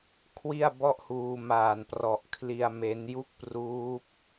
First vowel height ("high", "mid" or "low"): high